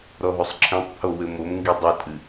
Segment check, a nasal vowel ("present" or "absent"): present